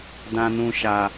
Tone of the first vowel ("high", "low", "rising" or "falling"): high